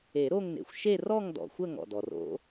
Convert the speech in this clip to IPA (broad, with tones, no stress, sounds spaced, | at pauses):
e˨˩˦ ɾ o˥˧ ŋ n ḛ˩ xʷ ʃ e˥˧ r ɔ˥˧ ŋ d ɔ̰˩ xʷ ə˥˧ ŋ ɔ̰˩ d ɔ˩ r o̰˨˩˦